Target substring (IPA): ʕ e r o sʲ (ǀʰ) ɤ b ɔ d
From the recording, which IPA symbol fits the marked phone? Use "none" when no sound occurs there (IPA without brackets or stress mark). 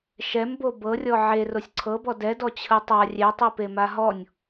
ǀʰ